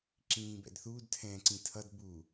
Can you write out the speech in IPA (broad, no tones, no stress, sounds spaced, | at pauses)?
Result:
ǁ ĩː b ɛ̰ d θ u d tʰ ɛ̃ː ǀ ĩ tʰ ʌ d b u